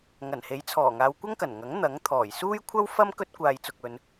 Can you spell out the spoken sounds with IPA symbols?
ŋɐ˨˩nhe˨˥jt͡sʰɔː˨˩ŋaː˨˧w kʷɐ˥ŋkɐ˨˩nŋɐ˨˥ŋ n̪ɐ˨˥ŋt̪ʰɔː˨˩j suː˥jkʷʰɐ˥wfɐ˥m kɵ˥t̚kʷaː˨jt͡sʊ˨k̚ɵ˨˧n

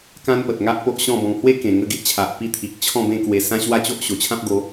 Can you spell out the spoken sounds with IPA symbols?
kã˦npə˨t̚ŋa˦ʔ po˦ʔɕɔ̃˥˧bɔ̃˧ŋ hwe˦kẽ˨˩ŋə˧ ɡe˦ʔt͡ɕʰa˨ʔ pi˧t̪ʰi˨k̚ t͡ɕʰɔ̃˥˧bẽ˥˧kwe˧ sã˦ ɕwa˥˧t͡ɕo˦ʔ ɕo˨˩t͡ɕʰã˦p̚ɡo˨˦

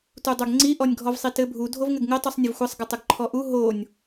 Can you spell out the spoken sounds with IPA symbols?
tudˤoɡŋ͡ǀi ʔɔnʲɡʱɔvsˤitɘ bʱu dʱovŋɘɡŋɘ tˤusˤnʲəvxʷɘsˤ ɡətˤəɡǃʰɔʔu ɦonʲ

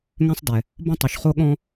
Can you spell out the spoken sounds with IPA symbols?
ŋɛ̃˧sˤdɛ˩ | bõ˧tˤo˩ʃ χo˧ɠɔ̃˧

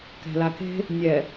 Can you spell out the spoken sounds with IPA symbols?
kɛ̤lake̤ | nʲɛ

